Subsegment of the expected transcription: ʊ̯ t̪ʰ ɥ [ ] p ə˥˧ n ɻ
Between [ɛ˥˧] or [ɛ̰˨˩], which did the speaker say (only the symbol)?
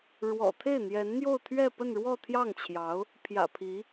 ɛ˥˧